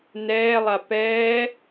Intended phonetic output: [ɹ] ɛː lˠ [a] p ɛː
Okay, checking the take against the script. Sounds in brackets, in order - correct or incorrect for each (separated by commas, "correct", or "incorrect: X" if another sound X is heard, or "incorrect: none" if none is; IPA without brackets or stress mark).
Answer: incorrect: n, correct